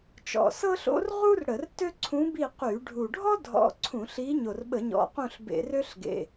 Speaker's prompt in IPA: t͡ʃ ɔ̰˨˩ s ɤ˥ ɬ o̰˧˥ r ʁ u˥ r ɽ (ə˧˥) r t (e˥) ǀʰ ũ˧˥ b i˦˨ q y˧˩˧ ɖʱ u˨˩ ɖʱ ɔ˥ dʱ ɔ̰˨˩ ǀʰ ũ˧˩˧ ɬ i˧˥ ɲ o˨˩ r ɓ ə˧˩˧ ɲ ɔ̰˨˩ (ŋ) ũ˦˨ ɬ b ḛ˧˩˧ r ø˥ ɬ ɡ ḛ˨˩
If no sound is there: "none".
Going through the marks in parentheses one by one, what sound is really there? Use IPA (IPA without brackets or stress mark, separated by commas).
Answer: ə˧˩˧, ø˥, q